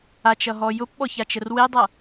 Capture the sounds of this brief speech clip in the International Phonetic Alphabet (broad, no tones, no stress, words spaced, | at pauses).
at͡ʃʌɦɔ jʊpɓɔçat͡ʃər wedˤʌ